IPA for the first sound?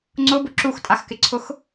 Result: ŋ͡ǀ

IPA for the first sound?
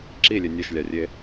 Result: ǁ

